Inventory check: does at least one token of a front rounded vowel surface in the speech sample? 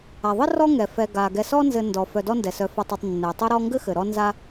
yes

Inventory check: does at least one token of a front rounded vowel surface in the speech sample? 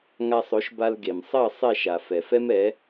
no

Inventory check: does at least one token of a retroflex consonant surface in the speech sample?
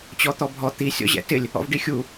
yes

